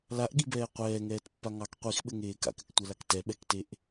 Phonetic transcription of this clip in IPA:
laʔɠibɛː qʷɛːŋɛːtpːa ŋɑk qʷixɓɘŋeː ka̰kɘktʷɛlak tɛɓɛkteʔ

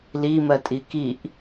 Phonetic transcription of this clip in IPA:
limɜtʼi kiʔ

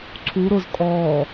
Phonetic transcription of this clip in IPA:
ǀʰu ɾʊz kʼɔː

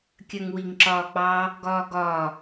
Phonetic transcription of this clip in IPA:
kʲɜŋwiŋǁɒːk͡pɑ | ɡɒːɡɒ

